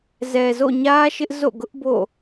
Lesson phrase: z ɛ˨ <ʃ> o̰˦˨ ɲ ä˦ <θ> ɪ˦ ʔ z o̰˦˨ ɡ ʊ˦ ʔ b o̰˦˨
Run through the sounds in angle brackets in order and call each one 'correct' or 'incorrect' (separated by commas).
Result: incorrect, incorrect